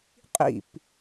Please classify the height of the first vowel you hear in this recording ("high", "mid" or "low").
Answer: high